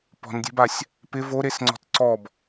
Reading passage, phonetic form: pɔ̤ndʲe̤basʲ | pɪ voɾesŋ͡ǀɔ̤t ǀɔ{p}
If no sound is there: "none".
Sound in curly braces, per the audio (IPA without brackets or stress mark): b